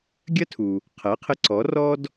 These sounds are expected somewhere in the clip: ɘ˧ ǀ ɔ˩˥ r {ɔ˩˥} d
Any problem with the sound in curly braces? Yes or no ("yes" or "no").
yes